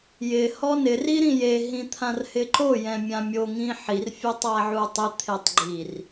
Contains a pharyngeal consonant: yes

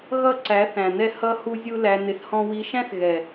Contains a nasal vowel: yes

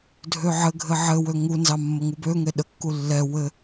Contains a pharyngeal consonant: yes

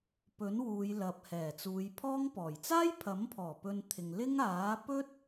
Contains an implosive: no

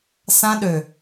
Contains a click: no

